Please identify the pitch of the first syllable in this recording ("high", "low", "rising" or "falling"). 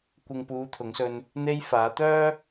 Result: low